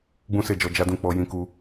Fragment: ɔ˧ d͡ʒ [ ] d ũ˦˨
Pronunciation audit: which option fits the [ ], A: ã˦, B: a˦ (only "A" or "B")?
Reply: B